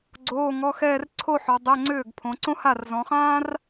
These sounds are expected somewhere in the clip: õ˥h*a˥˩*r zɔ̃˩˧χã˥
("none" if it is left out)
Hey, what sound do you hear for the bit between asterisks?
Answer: a˥˩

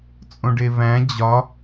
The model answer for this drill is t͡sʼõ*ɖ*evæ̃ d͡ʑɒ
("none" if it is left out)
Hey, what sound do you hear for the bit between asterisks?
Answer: ɖ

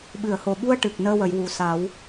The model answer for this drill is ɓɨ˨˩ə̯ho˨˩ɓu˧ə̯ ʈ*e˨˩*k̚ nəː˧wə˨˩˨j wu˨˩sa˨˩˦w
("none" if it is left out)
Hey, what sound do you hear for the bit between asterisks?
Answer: ɨ˨˩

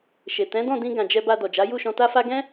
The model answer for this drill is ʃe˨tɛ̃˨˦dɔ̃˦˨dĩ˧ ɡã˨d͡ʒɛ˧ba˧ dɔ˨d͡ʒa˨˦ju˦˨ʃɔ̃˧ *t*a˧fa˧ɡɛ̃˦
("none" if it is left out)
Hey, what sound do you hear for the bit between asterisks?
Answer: t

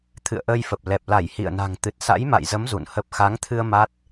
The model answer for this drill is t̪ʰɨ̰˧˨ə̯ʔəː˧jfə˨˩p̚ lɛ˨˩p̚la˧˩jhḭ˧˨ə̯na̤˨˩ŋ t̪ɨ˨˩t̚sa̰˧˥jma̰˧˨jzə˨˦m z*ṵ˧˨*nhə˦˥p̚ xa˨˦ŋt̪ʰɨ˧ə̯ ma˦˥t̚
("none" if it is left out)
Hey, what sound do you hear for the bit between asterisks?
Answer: ṵ˧˨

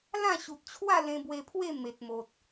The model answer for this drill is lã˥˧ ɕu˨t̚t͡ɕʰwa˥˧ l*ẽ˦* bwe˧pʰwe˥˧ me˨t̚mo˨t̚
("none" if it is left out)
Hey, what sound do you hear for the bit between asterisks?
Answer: ẽ˧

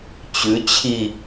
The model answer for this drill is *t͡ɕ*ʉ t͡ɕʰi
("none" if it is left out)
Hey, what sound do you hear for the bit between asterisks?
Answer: t͡ɕ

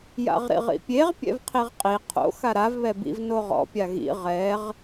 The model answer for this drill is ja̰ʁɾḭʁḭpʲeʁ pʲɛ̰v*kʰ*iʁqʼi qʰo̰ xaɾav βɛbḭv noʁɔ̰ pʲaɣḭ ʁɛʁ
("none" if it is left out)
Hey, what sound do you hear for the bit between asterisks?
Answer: qʰ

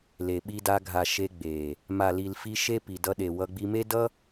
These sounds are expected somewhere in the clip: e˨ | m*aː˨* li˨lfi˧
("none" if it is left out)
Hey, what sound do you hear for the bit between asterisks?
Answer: a˨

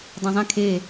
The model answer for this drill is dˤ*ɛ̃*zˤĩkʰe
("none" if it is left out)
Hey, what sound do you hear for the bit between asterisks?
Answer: ẽ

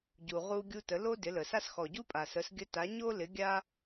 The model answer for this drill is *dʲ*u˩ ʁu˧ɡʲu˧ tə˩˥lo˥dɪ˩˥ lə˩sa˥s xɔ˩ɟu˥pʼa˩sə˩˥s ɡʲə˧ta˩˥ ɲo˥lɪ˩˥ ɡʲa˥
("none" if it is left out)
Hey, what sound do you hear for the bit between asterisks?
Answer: ɟ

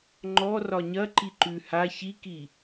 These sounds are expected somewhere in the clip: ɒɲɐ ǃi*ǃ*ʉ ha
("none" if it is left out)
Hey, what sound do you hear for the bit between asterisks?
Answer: ǃ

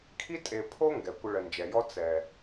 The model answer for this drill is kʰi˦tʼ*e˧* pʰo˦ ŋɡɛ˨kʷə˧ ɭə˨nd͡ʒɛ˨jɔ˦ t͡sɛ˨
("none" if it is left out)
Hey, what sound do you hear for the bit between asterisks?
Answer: e˨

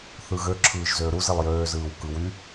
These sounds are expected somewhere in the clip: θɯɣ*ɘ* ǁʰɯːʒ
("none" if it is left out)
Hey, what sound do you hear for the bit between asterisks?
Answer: ø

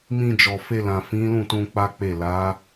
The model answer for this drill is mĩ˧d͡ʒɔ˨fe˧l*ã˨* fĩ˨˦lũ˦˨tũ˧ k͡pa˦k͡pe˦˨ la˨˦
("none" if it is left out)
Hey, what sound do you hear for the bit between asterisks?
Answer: ã˨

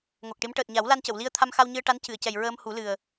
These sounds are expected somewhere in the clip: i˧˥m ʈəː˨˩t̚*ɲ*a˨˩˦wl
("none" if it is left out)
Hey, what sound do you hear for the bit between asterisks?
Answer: ɲ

